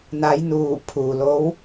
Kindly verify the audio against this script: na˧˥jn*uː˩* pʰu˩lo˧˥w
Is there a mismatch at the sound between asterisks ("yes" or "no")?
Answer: yes